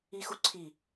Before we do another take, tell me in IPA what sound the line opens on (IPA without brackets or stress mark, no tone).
i